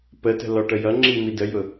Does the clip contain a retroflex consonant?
yes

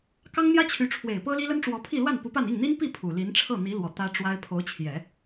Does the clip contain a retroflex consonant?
yes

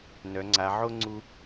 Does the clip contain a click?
yes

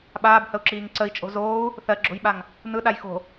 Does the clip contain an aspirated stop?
no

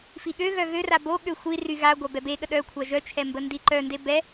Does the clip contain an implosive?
yes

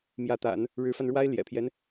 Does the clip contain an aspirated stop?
yes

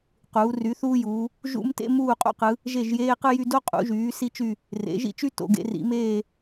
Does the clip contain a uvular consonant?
yes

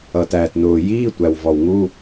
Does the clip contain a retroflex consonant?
no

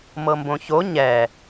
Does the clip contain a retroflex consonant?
no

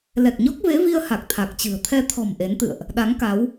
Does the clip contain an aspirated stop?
yes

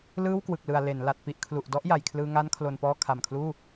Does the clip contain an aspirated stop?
yes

